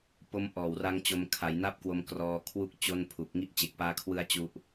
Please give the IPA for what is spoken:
p o˦˥ m ʔ ɔː˨˩ w r a˦˥ ŋ t͡ɕ o˧ m kʰ a˩˦ j n a˥˩ p̚ k w o˧ m k r ɔː˧ kʰ w u˦˥ k̚ t͡ɕ o˥˩ n pʰ u˨˩ k̚ ŋ i˦˥ ʔ t͡ɕ e˨˩ k̚ p aː˦˥ kʰ w ɯ˦˥ a̯ t͡ɕ u˦˥ ʔ

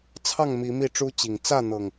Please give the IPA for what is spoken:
t͡sʰ ɑ˥˨ ŋ m i˨˦ m i˥˨ ʈ͡ʂ u˦ t͡ɕ i˨˩ ŋ t͡s ä˥˨ n̪ ɤ˨˩ ŋ

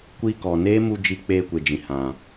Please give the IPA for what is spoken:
kʷ iː˧ k ɔ˨ n eː˦ m u˧ d͡ʒ i˧ k͡p eː˧ kʷ e˨ d͡ʒ ĩ˨ h ã˨

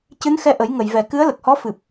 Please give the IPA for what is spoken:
c ɨ˧˥ n x ɛ˧ ʔ ə˨˩˦ j ŋ ə˨˩˨ j v ɛ˨˩ k ɨ˧˥ ə̯ l ə˨˩ k̚ h ɔ˧˥ f ɨ˨˩ p̚

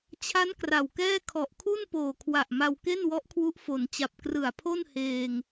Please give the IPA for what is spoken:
t͡ɕʰ a˦˥ n k r a˨˩ w k ɛː˥˩ kʰ ɔ˨˩ ʔ kʰ u˥˩ n p oː˨˩ kʰ w a˨˩ ʔ m a˧ w k e˥˩ n w ɔ˦˥ ʔ kʰ w u˦˥ ʔ f o˩˦ n t͡ɕ a˨˩ p̚ k r ɯ˨˩ a̯ pʰ o˥˩ n h eː˧ ŋ

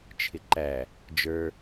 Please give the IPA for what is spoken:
t͡ʃʰ ɪ ǃ æ | d͡ʒ ə˞

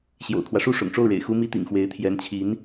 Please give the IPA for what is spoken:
ɕ j o̰˨˩ ʊ̯ kʰ w ä˦ ʂ u˥˩ ʂ ʊ̰˨˩ ŋ ʈ͡ʂ o˥˩ ʊ̯ ɻ ḛ˨˩ ɪ̯ x u˥ m i˥ t̪ ḭ˨˩ ŋ x w e˧˥ ɪ̯ t̪ʰ j ɛ˧˥ n t͡ɕʰ i˧˥ n

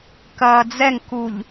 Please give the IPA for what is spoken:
k ɐː d͡z ɛ ŋ k u ʎ

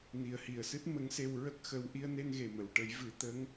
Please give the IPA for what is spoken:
n i˨˩ ə̯ h i˨˩ ə̯ s ɨ˦˥ t̚ m ə˧˥ ŋ s e˧ w ɹ ə˦˥ k̚ x ə˧ w ʔ i˧ ə̯ n e˧ n ɣ e˨˩ m ə˨˩˨ w ʈ ə˨˩˦ j v ɨ˨˩˦ t̪ ə˧˥ ŋ

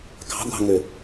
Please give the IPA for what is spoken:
k ɑ̤ ɡʷ ɑ̤ ŋ ø

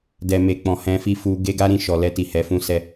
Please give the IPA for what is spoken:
d ɛ˨ m e˨ k͡p ɔ̃˨ h ɛ̃˧ f i˧ f u˧ ɡ e˦ ɡ a˦ ɾ ĩ˦˨ ʃ ɔ˨ l ɛ˧ t i˨ h ɛ˨˦ f ũ˦ s ɛ˧

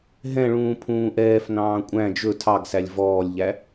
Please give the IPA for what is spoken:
ɦ ɛ̃ ɭ ũː pʰ ũː ʔ ɛː f n ɑ̃ː kʷʼ æ̃ d͡ʒ ɵ tʰ ɑ ɡ s æ lʲ v ɔː lʲ ʎ æ

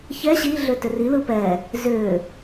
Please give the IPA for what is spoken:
ç ɛ ɕ i ɮ ʏ t ʏ r i l ɯ p ɛ | z ʏː

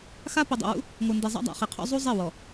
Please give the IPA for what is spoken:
x a˦ p i˨ dˤ ḛ˨ w ṵ˦ | ŋʷ ɤ˨ n d i˨ zˤ a̰˦ dˤ a̰˨ χ i˨ qʰ ɔ̰˦ zˤ u˦ zˤ e˦˨ w ɔ˨

